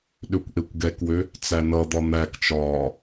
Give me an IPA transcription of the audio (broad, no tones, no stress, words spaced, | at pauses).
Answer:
ɗøkʷʔekʷɡɛkwø | t͡sænʌd̪ɒ n̪ækt͡ʃɒː